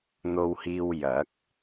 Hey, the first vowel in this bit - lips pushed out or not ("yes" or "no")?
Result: yes